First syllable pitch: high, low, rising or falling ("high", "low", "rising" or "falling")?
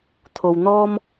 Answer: low